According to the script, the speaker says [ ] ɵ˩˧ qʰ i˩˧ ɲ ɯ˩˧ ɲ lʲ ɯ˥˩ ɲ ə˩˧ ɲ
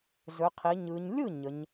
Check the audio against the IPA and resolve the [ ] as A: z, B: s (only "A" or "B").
A